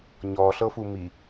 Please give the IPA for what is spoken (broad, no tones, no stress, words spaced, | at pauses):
ɲɔɬɤfu mi